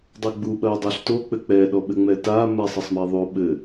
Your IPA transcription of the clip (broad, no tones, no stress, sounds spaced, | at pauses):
dˤ ɛ ɡ͡b u ɓ ɐ i̯ dˤ o ɬ t o k͡p ɘ k͡p ɛ ɗ ɔ ɓ ɘ ŋ͡m ɛ t a m ɛ sˤ ɐ sˤ m ɛ ðˤ o ɓ ɘ